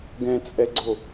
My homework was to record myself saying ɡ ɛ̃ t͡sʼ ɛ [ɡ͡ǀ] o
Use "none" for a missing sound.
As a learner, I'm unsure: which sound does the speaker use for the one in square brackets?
ɡ͡ǀ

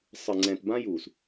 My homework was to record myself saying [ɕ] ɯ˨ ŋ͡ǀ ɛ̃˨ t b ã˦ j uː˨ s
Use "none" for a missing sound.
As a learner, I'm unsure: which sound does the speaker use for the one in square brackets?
sˤ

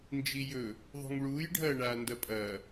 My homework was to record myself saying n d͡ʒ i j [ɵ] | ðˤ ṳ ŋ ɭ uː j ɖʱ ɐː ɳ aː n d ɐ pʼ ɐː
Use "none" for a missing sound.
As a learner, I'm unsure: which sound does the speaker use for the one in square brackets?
ɵ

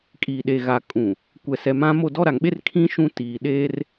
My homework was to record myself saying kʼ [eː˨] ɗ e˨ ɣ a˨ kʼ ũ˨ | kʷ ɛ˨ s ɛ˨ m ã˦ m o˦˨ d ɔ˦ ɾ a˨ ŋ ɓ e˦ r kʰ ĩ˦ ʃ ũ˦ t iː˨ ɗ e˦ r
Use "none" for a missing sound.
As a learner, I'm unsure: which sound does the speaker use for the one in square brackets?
iː˨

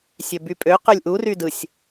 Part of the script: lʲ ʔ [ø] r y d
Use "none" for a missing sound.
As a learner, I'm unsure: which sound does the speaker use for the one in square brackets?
u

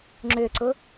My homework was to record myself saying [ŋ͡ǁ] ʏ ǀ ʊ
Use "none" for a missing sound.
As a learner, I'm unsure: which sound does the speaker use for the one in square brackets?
ŋ͡ǁ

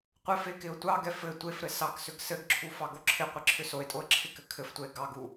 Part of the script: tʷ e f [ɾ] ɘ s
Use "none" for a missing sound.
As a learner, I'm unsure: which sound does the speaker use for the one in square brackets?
ɾ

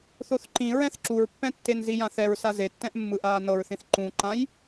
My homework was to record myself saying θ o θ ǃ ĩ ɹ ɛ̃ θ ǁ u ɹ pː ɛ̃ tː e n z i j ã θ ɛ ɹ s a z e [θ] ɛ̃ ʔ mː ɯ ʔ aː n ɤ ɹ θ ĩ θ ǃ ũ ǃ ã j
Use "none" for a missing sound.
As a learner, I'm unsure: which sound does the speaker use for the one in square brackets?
tː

